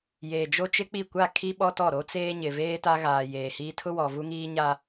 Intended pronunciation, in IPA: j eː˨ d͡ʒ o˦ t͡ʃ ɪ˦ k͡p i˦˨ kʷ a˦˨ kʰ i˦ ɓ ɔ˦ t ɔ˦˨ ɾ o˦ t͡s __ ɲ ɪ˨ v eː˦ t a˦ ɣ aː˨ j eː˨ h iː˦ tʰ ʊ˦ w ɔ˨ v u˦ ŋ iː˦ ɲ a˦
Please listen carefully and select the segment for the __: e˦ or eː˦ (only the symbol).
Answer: eː˦